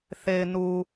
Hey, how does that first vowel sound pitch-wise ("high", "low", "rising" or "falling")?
low